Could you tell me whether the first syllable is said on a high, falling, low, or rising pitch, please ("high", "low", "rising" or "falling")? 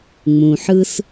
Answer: low